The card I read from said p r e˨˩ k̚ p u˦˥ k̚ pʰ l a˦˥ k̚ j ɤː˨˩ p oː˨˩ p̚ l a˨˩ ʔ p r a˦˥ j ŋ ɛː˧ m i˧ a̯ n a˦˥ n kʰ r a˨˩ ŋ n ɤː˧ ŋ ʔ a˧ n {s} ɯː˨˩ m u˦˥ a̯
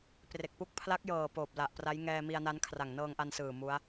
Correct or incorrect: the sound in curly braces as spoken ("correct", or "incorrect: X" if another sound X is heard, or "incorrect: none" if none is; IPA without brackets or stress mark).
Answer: correct